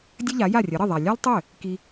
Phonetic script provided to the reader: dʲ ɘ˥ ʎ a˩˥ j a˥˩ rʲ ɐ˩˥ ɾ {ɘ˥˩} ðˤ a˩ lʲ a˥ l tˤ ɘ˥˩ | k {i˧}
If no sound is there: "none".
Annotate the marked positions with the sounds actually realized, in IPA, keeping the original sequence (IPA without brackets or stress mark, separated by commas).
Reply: ɘ˥˩, i˧